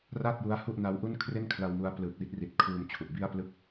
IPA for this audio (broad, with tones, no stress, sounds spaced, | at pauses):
r a˥˩ t̚ j u˦˥ a̯ h u˥˩ ʔ n a˦˥ w ʔ u˥˩ n kʰ r e˥˩ n kʰ l a˧ w m u˧ a̯ p l ɯ˨˩ k̚ w i˦˥ t̚ r i˨˩ t̚ kʰ uː˧ m t͡ɕʰ u˨˩ ʔ b i˥˩ a̯ p l ɯ˥˩ k̚